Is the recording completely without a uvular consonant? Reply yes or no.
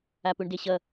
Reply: yes